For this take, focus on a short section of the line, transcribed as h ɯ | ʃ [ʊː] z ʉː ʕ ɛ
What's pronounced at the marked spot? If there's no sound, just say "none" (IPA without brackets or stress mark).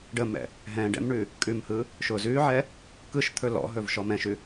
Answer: ʊː